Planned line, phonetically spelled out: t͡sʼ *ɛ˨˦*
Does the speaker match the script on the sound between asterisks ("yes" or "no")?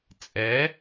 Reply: yes